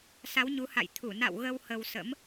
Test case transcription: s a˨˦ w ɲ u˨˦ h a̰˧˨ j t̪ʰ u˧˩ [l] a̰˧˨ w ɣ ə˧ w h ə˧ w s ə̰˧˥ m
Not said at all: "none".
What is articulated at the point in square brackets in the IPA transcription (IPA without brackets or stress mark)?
n